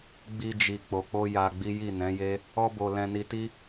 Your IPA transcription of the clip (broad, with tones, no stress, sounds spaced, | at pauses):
ɡ͡b i˧ d͡ʒ i˨ k͡p o˨ k͡p o˧ j a˧ ɡ͡b i˦ j i˦˨ n ɛ̃˨˦ j e˦ | ɔ˧ b o˨ l ɛ̃˧ n i˧ t i˦